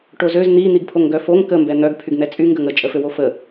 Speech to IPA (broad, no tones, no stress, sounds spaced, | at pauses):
ʈ o z ø z n̪ i n̪ i ɡ pʰ o ŋ ɡ œ f o ŋ k ə m b ɛ n̪ œ ɡ pʰ y ɡ n̪ ɛ t͡sʼ y ŋ ɡ ə ŋ ə t͡ʃʼ ə f ø w o f ə